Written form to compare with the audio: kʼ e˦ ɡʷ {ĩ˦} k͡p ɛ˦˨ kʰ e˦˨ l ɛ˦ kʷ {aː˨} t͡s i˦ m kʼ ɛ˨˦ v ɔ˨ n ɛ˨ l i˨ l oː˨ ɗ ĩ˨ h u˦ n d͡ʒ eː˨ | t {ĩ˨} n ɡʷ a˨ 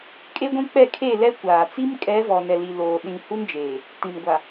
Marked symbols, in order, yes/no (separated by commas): yes, yes, yes